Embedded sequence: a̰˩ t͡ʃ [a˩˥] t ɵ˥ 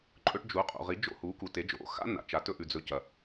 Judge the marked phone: correct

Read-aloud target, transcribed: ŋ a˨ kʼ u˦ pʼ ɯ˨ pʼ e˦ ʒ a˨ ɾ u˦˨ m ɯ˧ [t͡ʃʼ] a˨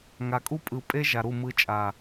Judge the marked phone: correct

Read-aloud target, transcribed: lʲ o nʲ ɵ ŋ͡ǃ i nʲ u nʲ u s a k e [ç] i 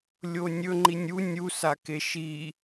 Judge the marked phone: incorrect: ʃ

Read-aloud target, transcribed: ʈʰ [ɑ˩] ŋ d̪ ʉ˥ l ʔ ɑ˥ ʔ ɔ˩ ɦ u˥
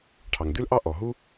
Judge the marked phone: correct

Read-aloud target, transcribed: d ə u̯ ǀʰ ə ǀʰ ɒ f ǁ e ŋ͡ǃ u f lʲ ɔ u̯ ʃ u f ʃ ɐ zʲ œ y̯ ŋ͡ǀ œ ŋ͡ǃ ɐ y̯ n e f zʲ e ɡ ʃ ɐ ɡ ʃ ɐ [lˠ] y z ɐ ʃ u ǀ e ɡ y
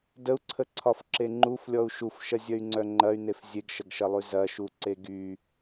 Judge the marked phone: correct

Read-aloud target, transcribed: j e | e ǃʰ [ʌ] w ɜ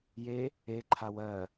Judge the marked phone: incorrect: a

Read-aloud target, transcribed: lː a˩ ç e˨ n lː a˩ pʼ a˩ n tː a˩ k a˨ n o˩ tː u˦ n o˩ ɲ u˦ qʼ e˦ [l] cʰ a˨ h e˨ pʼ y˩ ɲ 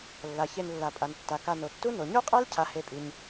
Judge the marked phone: correct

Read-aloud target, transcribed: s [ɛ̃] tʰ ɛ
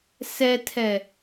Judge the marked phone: incorrect: ɛ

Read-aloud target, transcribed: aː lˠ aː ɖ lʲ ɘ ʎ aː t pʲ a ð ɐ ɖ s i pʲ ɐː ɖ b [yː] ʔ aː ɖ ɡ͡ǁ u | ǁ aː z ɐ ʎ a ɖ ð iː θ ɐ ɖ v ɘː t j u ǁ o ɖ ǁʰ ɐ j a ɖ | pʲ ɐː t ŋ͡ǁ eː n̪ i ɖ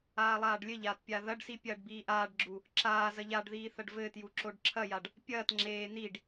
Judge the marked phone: incorrect: iː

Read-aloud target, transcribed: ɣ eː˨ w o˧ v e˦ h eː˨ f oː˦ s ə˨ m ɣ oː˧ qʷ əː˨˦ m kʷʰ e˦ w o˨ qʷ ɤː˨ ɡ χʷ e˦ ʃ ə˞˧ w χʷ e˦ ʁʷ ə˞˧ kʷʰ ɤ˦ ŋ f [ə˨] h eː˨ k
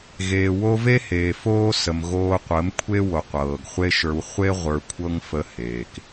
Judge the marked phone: incorrect: ə˧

